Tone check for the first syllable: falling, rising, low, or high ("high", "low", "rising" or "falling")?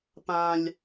low